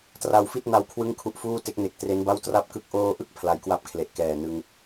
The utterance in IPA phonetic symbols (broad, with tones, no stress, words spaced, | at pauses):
tra˧wfi˥˩t̚na˧w kʰwɯ˥˩ŋkʰu˥˩ʔfuː˥˩te˦˥k̚ ne˨˩k̚ tre˦˥nba˥˩w tra˥˩p̚kɯ˦˥k̚ ʔoː˧ʔɯ˥˩k̚ pʰla˧jkwa˥˩p̚kʰle˨˩ʔ kɛː˨˩ nɯ˧ŋ